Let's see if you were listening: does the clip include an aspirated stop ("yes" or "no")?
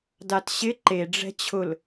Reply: yes